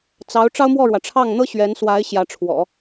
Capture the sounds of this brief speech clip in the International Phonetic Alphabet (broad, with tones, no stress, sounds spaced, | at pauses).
t͡s ɑ˧˥ ʊ̯ ʈ͡ʂ ɑ˥ ʊ̯ m w ɔ˥˩ ɻ w ä˩ ʈ͡ʂʰ ɑ˥˩ ŋ n̪ ɤ˥ ɕ ɥ ɛ˧˥ n s w a˧˥ ɪ̯ ɕ j ä˧˥ ʈ͡ʂʰ w ɔ̰˨˩˦